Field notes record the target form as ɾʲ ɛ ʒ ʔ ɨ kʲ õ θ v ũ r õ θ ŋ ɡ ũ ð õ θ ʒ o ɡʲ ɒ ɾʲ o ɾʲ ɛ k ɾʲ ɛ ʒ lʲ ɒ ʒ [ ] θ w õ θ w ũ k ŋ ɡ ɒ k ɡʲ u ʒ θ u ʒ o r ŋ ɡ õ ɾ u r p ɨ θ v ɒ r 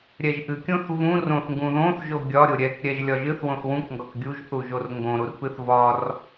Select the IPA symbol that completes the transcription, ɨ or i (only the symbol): ɨ